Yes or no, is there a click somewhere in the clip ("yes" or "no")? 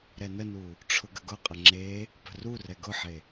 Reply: yes